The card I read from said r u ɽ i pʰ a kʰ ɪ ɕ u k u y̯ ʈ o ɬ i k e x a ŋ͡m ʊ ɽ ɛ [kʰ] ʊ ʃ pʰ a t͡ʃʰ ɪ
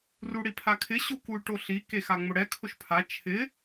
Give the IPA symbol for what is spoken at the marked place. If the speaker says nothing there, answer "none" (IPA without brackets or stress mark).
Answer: kʰ